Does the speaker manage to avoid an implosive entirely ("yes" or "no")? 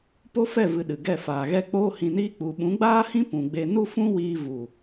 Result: no